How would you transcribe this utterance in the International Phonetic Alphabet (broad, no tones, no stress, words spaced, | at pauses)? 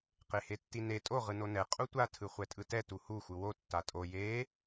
qehetːine tʼo ʁɯnonɛ qʼutʷa tʰɯχʷɛtʼɯtɛ tuhu xʷɯwo tːatʼo je